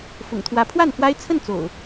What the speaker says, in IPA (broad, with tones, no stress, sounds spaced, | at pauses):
f ʊ̰˨˩ ŋ t̪ʰ w ä˨˦ pʰ w a˥˨ n f w a˦ ɪ̯ t͡sʰ ə˥˨ n t͡s o̰˨˩ ʊ̯